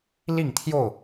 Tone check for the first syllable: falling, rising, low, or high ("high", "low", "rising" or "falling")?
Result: falling